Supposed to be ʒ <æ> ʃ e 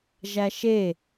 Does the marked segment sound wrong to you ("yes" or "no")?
no